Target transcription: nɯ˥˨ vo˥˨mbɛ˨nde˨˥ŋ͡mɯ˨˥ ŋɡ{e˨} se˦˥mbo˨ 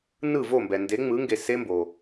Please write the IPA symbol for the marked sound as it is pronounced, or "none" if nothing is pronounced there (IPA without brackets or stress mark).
e˨